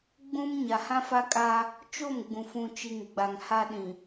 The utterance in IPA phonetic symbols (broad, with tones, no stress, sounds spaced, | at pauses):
ɡ͡b ũ˦ m ɲ a˨ h ã˦ f a˦ kʼ a˦ | t͡ʃ o˦˨ m ɡ͡b ũ˨ f ũ˨ t͡ʃ i˨ ŋ ɡ͡b a˨ ŋ h a˦ ɗ ĩ˨